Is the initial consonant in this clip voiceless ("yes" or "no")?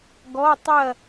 no